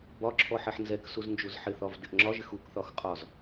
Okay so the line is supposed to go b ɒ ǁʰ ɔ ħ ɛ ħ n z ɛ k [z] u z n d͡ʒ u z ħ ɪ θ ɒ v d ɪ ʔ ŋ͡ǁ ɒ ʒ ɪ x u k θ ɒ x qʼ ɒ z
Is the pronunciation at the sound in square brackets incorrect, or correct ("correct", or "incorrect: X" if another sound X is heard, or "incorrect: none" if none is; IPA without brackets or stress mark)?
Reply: incorrect: s